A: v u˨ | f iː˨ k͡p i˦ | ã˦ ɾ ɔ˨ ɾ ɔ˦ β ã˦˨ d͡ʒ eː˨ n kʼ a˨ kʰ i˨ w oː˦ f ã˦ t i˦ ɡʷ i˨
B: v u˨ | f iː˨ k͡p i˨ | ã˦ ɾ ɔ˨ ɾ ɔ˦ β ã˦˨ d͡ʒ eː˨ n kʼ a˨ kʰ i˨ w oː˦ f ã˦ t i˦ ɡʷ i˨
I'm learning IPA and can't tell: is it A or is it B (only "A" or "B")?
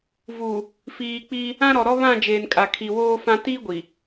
A